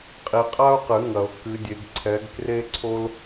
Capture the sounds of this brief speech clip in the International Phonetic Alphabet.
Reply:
qʼi˨qʼa˥o̯qɨ˨˩˦ ŋɐ˨˩˦o̯kɨ˨˦dʲe˨˦ɡ ǀʰɛ˨˦ɡkre˥ǀʰo˥l

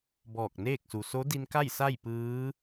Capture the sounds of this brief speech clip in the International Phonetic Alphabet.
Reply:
bɔː˧˩k̚neː˥˨k̚su˩ so˧˥di˧nka˥˨j sa˥˨jpɯː˧˥

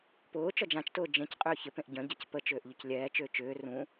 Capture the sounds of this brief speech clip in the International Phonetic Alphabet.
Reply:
pʊːt͡ʃɔ d͡ʒãt͡ʃtʊː d͡ʒẽc qʼʏːçɪpẽʔ ɟœ̃ɟac pət͡ʃʏːʔ ʎʊclʲɛːt͡ʃʏː t͡ʃʏː rũ

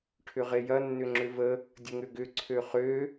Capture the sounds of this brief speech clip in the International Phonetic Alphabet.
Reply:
ʈʰʏʁejɐ nːʏŋ͡ǁʏvə | dʲəŋʏɡʏ ǀʰøχø

